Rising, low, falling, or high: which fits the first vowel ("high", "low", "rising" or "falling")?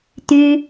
high